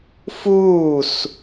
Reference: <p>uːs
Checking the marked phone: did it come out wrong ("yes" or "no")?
yes